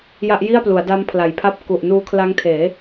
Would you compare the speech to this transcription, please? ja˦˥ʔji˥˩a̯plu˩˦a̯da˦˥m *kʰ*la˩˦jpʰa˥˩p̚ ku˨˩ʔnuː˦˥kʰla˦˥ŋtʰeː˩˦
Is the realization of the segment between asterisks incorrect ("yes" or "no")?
yes